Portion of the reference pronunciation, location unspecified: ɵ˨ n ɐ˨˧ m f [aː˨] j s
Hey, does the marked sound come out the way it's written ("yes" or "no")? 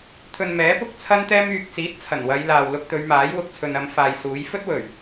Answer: yes